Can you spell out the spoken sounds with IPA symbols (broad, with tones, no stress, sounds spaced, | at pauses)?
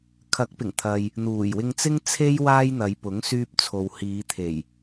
kʰ ɐ˨˥ k̚ p ɪ˨˩ ŋ t̪ʰ ɐ˨ j | n̪ uː˨˩ j w ɪ˧ ŋ t͡s ɪ˥ ŋ t͡sʰ e˥ j w aː˥ j n̪ ɐ˨˧ j p ʊ˨˥ ŋ s yː˥ p̚ t͡sʰ o˧ w h iː˨˧ t̪ʰ e˨˩ j